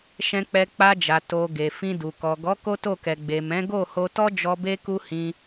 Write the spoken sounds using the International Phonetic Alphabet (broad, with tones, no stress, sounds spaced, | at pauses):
ʃ ɛ̃˧ k͡p ɛ˧ k͡p a˧ d͡ʒ a˨ t o˨ ɡ e˨ f ĩ˧ d u˨ k ɔ˨ ɡ ɔ˨˦ k o˦ t o˦˨ k ɛ˨ ɡ͡b e˨ m ɛ̃˨˦ ɡ o˦˨ h o˧ t ɔ˦ d͡ʒ ɔ˧ b e˦ k u˦ h ĩ˧